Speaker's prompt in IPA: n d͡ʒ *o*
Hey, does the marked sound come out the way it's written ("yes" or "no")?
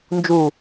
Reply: no